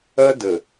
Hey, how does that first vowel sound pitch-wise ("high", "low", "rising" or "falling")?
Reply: high